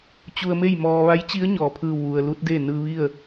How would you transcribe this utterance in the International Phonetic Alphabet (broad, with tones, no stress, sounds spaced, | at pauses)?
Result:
t͡ɕ u˧ ə̯ m e˥˨ j m ɔː˧ ʋ a˧˥ j t͡ɕ i˧˥ ə̯ ɲ ɔː˩ pʰ ɯː˧˩ w ʋ u˩ ə̯ l u˧˥ t̚ d e˥˨ n ɯː˧ ʋ i˥˨ ə̯